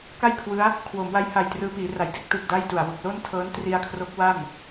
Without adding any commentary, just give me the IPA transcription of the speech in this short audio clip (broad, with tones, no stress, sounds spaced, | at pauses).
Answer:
k a˥˩ j kʰ w ɯ˦˥ a̯ | kʰ w o˩˦ m w a˧ j h a˨˩ j t r ɯː˧ p iː˩˦ r a˩˦ j d e˥˩ k̚ t ɯ˨˩ k̚ d a˥˩ j t u˨˩ a̯ w u˨˩ k̚ l o˥˩ n tʰ ɤː˦˥ n t r i˧ a̯ kʰ r o˦˥ k̚ w a˥˩ m